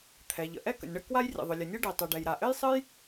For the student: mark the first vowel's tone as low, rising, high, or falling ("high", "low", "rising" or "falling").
low